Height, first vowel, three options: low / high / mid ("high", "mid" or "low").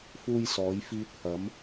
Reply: high